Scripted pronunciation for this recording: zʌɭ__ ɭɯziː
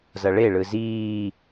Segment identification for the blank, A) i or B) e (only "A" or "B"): B